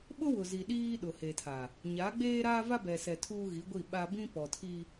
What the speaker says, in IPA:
ɓ ʊ˦ w ʊ˨ z i˨ ɗ iː˦ ɗ ʊ˨ h e˨ tʰ a˨ | ɲ a˨˦ ɡ͡b eː˦ ɾ aː˦ v a˦ b ɛ˨ s ɛ˨ tʰ uː˦ ɣ i˨˦ ɡʷ i˦˨ ɓ a˦ b ĩ˦ p ɔ˨ tʰ i˦

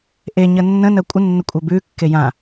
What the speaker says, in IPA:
ʔ e ɲ ə nː ə̃ n ɜ kʷʼ ə nː ə kʷʼ ɜ b ʉ kː e j ã

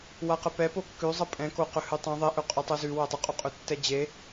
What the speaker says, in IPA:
w a q ə p ɛ p o kː ʉ zˤ ə pʼ ɛ̃ k o q ɵ h ʉ tˤ ɛ̃ ðˤ e ʔ ɵ qʼ ʉ tˤ ʉ z ʉ w ɛ tˤ ə qʼ o qʼ ɵ tː ɛ d͡ʑ e

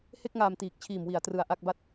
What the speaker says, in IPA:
h e˥˩ k̚ ŋ aː˨˩ m t iː˨˩ k̚ t͡ɕʰ iː˨˩ m w i˩˦ a̯ t r ɯ˨˩ a̯ ʔ a˥˩ k̚ b a˥˩ t̚

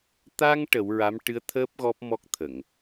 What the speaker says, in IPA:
t̪ a˧ ŋ ʈ ə˨˩˦ w ɹ a˧˥ m ʈ ɨ˧˥ ə̯ t̪ʰ əː˦˥ p̚ ɣ ɔ˦˥ p̚ m ɔ˦˥ k̚ t̪ʰ ə˨˩˨ ŋ

